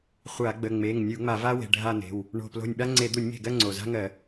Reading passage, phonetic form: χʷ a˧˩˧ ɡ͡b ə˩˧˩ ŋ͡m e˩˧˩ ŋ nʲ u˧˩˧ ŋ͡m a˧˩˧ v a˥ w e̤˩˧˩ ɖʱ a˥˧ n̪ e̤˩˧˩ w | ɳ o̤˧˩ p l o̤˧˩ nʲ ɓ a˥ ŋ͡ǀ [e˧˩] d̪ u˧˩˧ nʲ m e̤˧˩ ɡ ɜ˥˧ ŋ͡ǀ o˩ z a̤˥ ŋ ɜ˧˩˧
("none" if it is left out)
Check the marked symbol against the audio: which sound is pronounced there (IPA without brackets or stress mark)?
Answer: e˧˩˧